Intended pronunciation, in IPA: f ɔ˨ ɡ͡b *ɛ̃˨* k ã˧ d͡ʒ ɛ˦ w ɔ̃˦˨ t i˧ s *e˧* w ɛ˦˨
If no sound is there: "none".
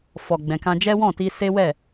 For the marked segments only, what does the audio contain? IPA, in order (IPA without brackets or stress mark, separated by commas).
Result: ɛ̃˨, e˦